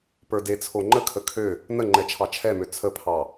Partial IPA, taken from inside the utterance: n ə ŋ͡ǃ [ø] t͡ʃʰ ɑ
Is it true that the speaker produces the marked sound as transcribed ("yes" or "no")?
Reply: no